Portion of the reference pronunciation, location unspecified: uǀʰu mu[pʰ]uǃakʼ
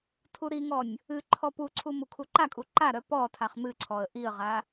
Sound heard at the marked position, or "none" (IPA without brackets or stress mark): kʰ